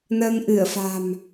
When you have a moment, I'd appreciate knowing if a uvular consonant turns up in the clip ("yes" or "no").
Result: no